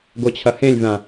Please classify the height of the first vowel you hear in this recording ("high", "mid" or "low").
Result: mid